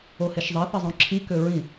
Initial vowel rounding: rounded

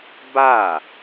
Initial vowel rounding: unrounded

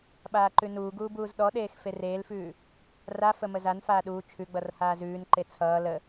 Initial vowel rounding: unrounded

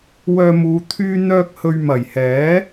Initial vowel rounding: rounded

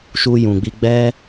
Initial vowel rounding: rounded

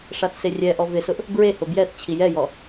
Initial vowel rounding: unrounded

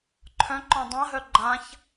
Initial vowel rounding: rounded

